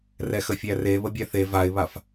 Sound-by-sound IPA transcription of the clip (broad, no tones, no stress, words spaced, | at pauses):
rɛxəfʲære βəbʲæθe vaɪ̯βaf